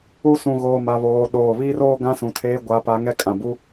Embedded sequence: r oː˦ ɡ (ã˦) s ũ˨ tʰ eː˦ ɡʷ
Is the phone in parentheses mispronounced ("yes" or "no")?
no